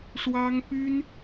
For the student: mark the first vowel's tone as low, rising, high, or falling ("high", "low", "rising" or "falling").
high